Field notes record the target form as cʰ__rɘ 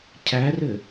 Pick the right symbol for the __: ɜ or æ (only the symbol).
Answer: æ